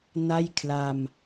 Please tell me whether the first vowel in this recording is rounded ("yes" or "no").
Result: no